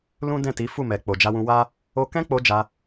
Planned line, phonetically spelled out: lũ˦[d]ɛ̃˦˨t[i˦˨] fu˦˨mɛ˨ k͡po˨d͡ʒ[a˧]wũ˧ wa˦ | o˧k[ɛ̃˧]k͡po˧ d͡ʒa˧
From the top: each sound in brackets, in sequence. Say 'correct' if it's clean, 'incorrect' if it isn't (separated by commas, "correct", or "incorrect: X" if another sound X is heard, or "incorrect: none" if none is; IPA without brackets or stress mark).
correct, incorrect: i˨˦, correct, incorrect: ɛ̃˦